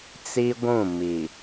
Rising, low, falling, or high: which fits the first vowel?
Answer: high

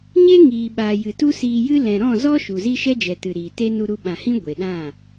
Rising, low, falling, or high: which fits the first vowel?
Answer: high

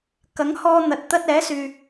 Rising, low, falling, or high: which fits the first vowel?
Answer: rising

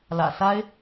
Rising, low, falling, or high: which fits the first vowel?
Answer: low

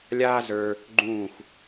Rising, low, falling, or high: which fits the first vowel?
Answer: high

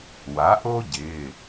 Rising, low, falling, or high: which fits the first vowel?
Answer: rising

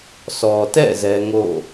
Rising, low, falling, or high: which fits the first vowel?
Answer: low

